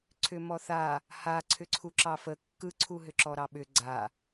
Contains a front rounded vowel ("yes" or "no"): yes